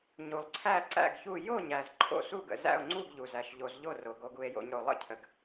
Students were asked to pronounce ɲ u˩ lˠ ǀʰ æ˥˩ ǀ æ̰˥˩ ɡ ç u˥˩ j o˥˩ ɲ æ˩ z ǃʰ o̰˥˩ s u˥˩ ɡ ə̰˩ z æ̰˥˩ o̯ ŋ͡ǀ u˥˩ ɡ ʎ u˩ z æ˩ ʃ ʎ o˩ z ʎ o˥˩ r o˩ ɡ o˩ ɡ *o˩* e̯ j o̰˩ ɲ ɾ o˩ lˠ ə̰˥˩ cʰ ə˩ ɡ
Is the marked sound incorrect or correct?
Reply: incorrect